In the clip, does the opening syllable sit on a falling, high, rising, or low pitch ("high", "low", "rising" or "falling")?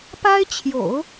high